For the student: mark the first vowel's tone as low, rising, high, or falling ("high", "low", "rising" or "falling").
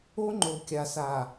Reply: high